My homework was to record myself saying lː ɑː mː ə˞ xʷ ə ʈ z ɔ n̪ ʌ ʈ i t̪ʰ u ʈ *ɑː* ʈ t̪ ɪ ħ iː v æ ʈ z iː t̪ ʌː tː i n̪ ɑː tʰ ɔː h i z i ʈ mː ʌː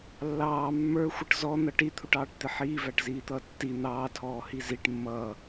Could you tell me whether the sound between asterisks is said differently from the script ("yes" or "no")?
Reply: no